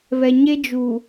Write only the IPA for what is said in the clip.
βɛ˨ɲe˦d͡ʒu˨

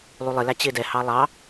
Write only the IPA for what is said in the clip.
lˠulˠɪlæ t͡ɕɪːdɛhɑ lˠɑ

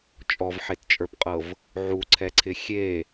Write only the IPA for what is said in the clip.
t͡ʃʼɔvħett͡ʃʼə˞pqʼɤv | ʕuǀʰɛǀʰɪ xʲe

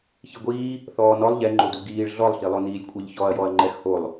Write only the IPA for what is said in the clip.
çiɡʷiː | θɔːnɔlˠ ʎɛŋ͡ǃodu ɡiːɭ ɮɔlˠɬilˠo niːlʲkʷʼeʎçɔɐ̯jɔɐ̯ ŋ͡ǃɛxholˠ

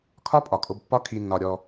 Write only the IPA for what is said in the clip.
kʰɒ˦pʼɒ˨kʼo˧b pːɒ˦kʰi˧nːɒ˧ ɾʲɔ˧

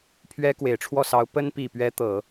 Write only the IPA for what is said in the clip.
pʰɥɛ˥kwe˨˩ɪ̯ʈ͡ʂʰwɔ˥˩ sɑ˧˥ʊ̯ pə˥npi˨˩pɥɛ˧˥ t̪ɤ˨˩˦

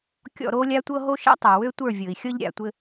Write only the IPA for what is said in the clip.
kʲɔ̰˦˨ɾoː˦lʲa˦tʷɤ˦ ɦo˦ʃa̰˦tˤa˨wø˦ tʷə˞˦˨vʲɤ˨i̯xʲɤ˦ʎ ɾʲa̰˨tʷɘ˦

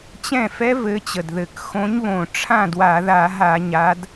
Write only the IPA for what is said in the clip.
t͡ɕɛ̃˥˩fɛ˦˥vɘ˨˦ t͡ɕə˨˩dðɘ˧˩˧k xõ˨˦ɲβõ˨˩ ʈ͡ʂʰã˥˩dwa˧˩˧ða˧˩˧ɦa˧˩˧ ɲa˨˦d

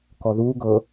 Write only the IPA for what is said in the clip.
kɔðuː ɡɤ

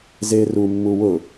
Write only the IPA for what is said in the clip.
zeru mːuwʊ

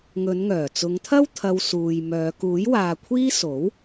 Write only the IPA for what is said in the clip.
ŋɵ˨˧nŋœː˨˩t͡sʊ˨˧ŋt̪ʰɐ˥w t̪ʰɐ˧wsuː˨jmœː˨˧ kuː˨˥jwaː˨kʷʰiː˥ so˨˥w

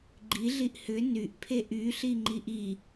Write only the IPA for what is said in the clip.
ɡ͡ǃiɮiʔ hʏ nyʔpʰe ʔyɬiŋ͡ǃiʔ i

